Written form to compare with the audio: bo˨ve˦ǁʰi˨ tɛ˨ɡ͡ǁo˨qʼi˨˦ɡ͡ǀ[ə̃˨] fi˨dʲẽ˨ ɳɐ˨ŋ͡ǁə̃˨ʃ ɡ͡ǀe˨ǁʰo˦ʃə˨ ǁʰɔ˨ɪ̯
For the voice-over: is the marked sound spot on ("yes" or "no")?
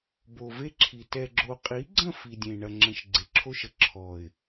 no